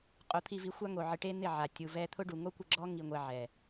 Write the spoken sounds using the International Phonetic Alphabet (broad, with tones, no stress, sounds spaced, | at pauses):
qʼ o˨˦ t̪ʰ i˧ v i˧ xʷ a˦ ŋ o˨ ʕ ɪ˧ ʈ e˦ n̪ ɪ˦˨ ʕ a˨ tʲ u˨ v ɛ˧ t̪ʰ ʊ˦ ɖ u˨ ŋ o˦ kʷ ɪ˧ ɡ͡ǁ ɔ˦ ŋ i˧ ŋʷ ɛ˧ ʕ ɛ˨